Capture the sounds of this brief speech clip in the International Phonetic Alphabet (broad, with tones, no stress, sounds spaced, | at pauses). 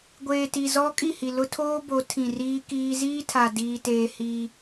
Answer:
ɡʷ eː˨ t i˨ z ɔ˦ kʼ i˦˨ h i˨ l ʊ˦ tʰ oː˦ b o˨˦ tʰ ĩ˨ r iː˦ k iː˦ z iː˦ tʰ a˨ d iː˦ t eː˦ h i˦